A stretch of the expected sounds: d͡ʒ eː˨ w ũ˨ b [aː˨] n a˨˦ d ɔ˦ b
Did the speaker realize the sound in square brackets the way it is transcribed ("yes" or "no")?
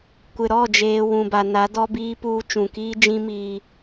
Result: no